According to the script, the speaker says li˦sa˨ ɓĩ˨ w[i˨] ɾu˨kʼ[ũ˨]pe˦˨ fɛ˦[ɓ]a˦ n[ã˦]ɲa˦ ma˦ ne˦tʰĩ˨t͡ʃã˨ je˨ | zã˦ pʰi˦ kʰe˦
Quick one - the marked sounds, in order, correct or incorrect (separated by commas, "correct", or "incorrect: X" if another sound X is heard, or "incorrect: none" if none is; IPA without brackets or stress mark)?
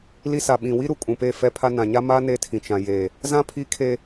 incorrect: i˦, correct, incorrect: pʰ, incorrect: ã˨